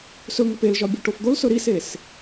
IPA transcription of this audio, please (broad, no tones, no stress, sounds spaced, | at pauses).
s ɵ ŋ o p e l ʒ ɒ bʲ ɵ ʈ o f d̪ o l s ɵ ɾ i s e s